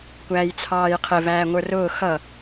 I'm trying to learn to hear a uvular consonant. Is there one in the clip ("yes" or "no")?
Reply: yes